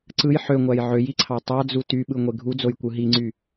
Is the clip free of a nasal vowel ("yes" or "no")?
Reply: yes